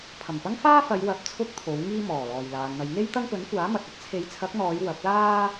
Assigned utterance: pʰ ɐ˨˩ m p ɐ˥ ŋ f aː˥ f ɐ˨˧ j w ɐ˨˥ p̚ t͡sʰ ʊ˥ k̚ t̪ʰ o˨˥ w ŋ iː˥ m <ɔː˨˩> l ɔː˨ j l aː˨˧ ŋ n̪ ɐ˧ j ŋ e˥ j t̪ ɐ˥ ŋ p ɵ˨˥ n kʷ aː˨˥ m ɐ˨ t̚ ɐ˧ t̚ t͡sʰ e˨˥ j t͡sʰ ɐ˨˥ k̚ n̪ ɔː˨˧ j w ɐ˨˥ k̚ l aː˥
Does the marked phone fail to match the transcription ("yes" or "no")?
no